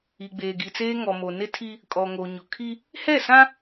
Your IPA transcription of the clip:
i˨ɡ͡beː˨ɡi˨t͡seː˦ ŋɔ˨mo˨ nɪ˦tʰi˦ | kʼɔ˨ŋo˨ɲʊ˨kʰi˦ | hɛ˦˨sã˦

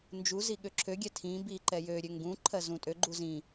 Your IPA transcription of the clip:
nd͡ʒu ziɠøǁʰøɡʲɛ tʰĩ bi ǃɛjøɾʲø ŋɡũ ǃʰɜzũtʼøɡ͡ǃu zĩ

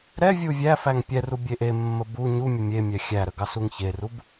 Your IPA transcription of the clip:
ɾɛ vʲuvʲæfæŋ pʲɛru bʲeʔemːə bu ɲumʲə mʲemʲɛ xʲæɾə ɡɑsuŋçerub

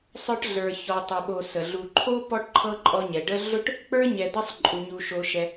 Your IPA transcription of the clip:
sˤə˞˦ʈɮə˞˨ çɔ˨tˤo˨ɓo˨sə˩ ɮu˨ǃʰo˥pɔ˦ʈ ǃʰɤ˥ǃʼɔ˦ɲɛ˩ ɖə˦ɮʊ˥ʈ | k͡pə˞˥ɲɛ˨d̪ɛ˦sˤǃʼu˩ ɲu˨ʃo˨ʃɛ˨

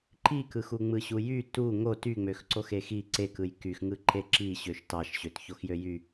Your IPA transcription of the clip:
ǃikɯx uŋ͡mɯɕujy tu ŋot yŋ͡møxǀox exi ǀekɯj kyxŋɯ ǃeǁi ɕøʃtɑʃ ɕøtçoxjøjy

